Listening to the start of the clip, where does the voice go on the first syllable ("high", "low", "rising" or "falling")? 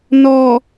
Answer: low